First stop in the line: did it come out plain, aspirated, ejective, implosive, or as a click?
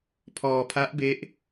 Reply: aspirated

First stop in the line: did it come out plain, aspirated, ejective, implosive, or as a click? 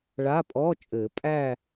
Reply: ejective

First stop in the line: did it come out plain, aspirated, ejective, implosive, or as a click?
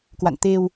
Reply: plain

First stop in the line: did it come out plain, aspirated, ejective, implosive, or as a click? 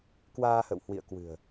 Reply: plain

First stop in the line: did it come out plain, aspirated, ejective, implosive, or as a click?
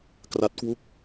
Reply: plain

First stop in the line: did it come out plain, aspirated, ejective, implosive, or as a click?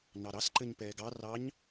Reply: click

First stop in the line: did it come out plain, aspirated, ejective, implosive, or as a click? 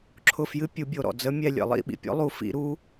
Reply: click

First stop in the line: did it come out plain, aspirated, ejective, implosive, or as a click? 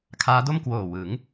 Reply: aspirated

